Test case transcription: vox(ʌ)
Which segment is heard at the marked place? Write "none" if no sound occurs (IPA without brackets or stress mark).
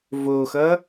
ʌ